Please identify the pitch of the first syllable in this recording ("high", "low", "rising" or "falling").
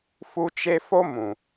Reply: high